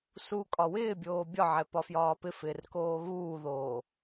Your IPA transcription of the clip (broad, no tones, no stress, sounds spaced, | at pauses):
s u kʼ ɒ w ɪː bʲ oː bʲ ɒ ʕ ɛ p ɒ f j ɒː p ɪ f ɪː r k oː ɣ uː ð oː